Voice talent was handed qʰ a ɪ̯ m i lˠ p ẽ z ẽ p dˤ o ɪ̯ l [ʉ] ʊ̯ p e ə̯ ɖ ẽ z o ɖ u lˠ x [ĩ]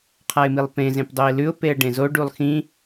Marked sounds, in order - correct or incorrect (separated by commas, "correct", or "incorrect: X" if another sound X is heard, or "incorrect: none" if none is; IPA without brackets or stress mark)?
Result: correct, correct